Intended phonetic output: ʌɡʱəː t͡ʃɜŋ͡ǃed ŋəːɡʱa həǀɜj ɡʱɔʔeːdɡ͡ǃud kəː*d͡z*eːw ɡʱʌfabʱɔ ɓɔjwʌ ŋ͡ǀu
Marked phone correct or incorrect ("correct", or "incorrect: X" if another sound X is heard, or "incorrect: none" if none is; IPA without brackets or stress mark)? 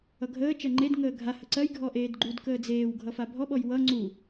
correct